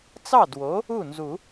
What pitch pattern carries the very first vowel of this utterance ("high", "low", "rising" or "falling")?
falling